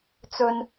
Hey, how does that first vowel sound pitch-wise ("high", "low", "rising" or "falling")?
high